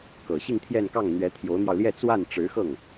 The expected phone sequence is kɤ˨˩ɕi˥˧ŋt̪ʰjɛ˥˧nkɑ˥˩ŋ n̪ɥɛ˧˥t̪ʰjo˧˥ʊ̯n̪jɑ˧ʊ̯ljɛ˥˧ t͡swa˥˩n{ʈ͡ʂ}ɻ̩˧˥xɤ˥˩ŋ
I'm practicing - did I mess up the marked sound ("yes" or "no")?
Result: no